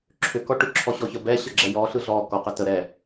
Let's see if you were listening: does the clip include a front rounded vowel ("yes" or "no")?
yes